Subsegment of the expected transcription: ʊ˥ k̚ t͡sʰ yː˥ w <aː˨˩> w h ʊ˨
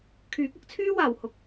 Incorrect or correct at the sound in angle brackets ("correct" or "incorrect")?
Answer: correct